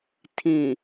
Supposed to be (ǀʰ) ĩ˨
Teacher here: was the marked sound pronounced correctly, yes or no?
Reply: no